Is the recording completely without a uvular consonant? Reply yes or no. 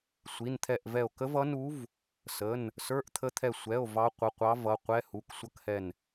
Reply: no